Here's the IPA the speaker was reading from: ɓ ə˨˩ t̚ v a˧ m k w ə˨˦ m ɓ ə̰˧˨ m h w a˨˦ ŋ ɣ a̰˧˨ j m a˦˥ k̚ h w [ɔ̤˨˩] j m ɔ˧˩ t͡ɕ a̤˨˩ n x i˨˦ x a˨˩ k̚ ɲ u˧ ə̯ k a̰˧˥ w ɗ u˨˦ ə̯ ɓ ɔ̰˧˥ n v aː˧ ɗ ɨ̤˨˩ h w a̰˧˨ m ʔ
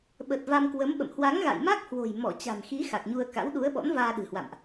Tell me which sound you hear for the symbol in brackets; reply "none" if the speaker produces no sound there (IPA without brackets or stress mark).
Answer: o̤˨˩